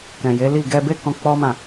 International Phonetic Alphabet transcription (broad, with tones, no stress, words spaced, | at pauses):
kɛ̃˨je˨˦li˦˨ ɡɛ˧be˦kɔ̃˧ k͡pɔ˦mã˦˨